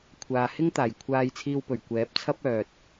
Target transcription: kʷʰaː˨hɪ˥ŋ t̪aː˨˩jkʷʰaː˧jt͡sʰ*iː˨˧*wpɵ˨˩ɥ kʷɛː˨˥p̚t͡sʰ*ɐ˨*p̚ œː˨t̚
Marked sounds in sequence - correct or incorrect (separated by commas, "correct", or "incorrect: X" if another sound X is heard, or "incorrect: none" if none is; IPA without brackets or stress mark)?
incorrect: iː˧, incorrect: ɐ˥